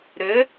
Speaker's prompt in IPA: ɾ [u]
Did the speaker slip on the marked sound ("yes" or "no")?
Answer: yes